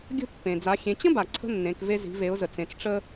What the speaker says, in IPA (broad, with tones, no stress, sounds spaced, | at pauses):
ɡʲ ə̤˥ pː ẽ˩ d͡z a˩˧ xʲ ẽ˩˧ t͡ɕ ə̃˥ b a˩ ǀʰ ə̤˥ nː ẽ˩˧ k v e˧ z i̤˩˧ v e˩˧ ʊ̯ z ə˩ t͡s ẽ˩˧ t͡s ʈ͡ʂ ə˧